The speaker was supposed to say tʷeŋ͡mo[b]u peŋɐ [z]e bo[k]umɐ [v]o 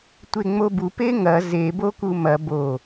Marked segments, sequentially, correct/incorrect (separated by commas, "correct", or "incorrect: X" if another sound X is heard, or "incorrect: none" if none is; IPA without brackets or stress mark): correct, correct, correct, incorrect: b